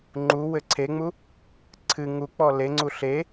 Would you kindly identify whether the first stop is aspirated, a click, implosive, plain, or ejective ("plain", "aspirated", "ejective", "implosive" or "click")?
click